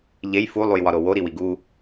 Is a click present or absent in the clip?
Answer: absent